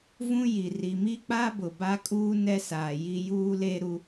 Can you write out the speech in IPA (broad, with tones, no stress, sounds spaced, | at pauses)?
v ũ˦ j i˨ r i˨ m i˦ k͡p a˦ b ʊ˨ b a˦ kʼ uː˦ n ɛ˦ s aː˨ j i˦ j uː˦ l e˦ ɾ u˦